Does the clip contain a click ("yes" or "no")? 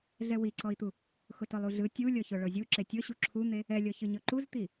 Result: yes